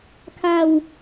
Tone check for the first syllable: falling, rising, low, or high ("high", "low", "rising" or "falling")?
falling